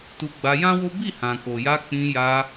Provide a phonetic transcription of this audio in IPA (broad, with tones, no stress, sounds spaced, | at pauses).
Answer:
t u˧ ɡ͡b a˧ j ã˦ w o˦ b i˦˨ h ã˨ k o˨ j a˧ k͡p ĩ˧ j a˧